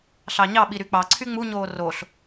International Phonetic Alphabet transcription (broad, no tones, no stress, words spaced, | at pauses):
ɬɑɲɑɓi ɾyk͡pɑǀʰy ŋ͡muɲoː roɬ